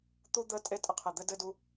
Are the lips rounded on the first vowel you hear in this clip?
yes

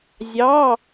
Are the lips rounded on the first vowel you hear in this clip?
no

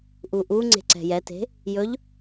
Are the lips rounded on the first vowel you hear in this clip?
yes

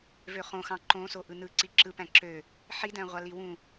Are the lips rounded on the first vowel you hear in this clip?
yes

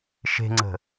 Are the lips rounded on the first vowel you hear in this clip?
no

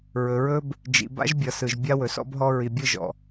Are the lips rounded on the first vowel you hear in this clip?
yes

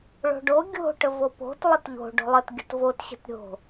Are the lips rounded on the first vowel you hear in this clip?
yes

